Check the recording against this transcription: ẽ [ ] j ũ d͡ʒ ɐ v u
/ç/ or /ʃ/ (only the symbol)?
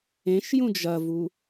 ʃ